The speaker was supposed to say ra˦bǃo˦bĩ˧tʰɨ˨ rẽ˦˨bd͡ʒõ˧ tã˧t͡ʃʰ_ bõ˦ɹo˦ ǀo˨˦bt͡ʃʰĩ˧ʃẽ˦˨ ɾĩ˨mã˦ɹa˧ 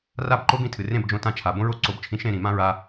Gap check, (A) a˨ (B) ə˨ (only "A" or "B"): A